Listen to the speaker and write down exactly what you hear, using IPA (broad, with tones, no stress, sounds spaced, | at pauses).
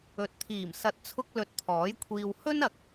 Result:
ɵ˨˥ t̚ t̪ʰ iː˨˩ m s ɐ˧ t̚ t͡sʰ ʊ˥ k̚ l ɵ˧ t̚ t̪ʰ ɔː˨˥ j kʷʰ iː˧ w h ɵ˥ n ɐ˨ k̚